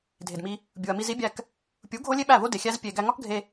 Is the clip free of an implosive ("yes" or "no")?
no